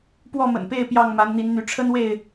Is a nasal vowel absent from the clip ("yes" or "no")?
yes